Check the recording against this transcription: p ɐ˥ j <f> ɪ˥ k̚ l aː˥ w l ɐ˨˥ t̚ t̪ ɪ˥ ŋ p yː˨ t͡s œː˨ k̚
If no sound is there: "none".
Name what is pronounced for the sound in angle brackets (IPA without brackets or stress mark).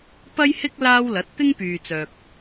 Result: h